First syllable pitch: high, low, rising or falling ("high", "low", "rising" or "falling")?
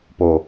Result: low